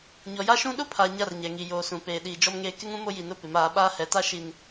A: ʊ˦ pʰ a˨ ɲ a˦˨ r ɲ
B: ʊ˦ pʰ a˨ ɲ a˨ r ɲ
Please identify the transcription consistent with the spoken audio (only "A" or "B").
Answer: A